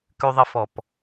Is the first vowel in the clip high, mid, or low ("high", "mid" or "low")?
high